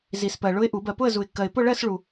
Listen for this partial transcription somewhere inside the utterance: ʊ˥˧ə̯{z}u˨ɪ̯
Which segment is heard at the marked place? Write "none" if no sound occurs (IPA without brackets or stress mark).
z